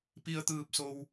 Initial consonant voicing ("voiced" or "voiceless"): voiceless